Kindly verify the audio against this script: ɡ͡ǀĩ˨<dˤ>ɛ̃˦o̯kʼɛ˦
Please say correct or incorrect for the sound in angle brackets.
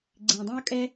correct